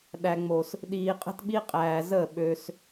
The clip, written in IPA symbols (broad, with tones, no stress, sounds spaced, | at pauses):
ɗ æ˨ ŋ͡m o˨ s | ɗ iː˨ qʼ ə̤˦ t ɓ i˦ qʼ æː˨ z ə˦˨ ɓ ø˧ s